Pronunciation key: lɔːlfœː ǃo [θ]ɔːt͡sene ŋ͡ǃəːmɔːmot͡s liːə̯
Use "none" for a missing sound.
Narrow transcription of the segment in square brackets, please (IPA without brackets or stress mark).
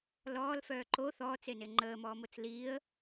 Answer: θ